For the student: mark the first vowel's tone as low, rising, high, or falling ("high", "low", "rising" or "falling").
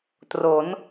rising